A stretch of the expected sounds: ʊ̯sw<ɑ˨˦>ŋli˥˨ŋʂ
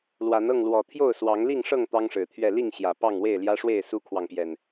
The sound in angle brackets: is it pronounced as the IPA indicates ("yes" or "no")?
yes